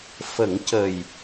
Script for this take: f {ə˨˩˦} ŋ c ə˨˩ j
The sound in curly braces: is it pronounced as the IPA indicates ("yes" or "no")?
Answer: yes